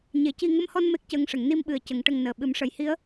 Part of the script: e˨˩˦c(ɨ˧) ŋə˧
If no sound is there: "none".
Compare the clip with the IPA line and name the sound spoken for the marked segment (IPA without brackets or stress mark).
i˧